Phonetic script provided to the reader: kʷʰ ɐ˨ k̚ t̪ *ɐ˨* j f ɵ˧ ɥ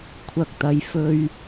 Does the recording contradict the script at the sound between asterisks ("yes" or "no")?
no